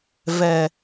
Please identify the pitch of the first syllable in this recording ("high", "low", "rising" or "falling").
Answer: low